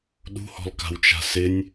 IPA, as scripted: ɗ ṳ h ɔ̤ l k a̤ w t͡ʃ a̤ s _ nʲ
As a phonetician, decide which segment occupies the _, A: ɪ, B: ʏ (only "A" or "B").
A